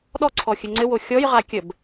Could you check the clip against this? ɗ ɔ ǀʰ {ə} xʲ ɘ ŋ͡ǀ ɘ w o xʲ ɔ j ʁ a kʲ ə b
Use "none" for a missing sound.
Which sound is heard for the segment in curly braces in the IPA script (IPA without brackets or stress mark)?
ɔ